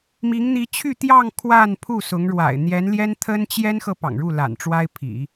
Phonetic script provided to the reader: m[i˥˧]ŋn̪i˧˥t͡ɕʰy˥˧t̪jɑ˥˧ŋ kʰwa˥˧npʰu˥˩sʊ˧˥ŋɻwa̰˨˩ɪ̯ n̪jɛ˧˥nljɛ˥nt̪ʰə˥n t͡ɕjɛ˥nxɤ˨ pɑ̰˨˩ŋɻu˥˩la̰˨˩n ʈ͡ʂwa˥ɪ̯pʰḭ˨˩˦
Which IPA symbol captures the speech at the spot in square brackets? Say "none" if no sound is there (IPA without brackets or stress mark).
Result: i˧˥